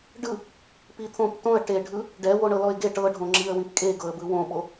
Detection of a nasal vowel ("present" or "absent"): present